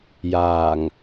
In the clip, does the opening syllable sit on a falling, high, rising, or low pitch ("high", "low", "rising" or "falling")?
low